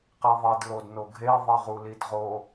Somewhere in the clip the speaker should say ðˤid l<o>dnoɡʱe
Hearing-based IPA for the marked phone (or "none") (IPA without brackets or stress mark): o